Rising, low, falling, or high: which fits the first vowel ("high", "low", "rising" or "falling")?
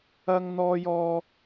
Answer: high